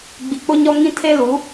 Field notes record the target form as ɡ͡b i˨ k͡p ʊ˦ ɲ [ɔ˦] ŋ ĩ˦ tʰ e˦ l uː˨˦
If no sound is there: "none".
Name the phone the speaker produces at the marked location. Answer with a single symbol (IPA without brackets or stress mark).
ɔ˦